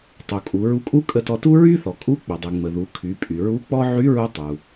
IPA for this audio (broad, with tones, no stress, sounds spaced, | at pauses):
tˤ u˩ kʼ u˩˧ ɹ u˧ kʼ u˥ kʼ ə˧ t ɔ˧ t u˥ ɹ y˥ θ ɔ˩ kʼ u˧˥ k͡p ə˩ dˤ y˩ ŋ͡m ə˩ ð u˩˧ kʰ y˩˧ pʼ y˩ ɹ u˧˥ k͡p ɔ˥ ʕ y˧˥ ɹ u˧ tˤ u˩